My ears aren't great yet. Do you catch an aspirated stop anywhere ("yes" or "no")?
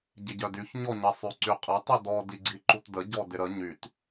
no